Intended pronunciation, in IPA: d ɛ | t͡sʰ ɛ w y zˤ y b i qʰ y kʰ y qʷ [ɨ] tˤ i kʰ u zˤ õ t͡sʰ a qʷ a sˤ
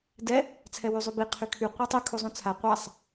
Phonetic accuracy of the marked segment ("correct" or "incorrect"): incorrect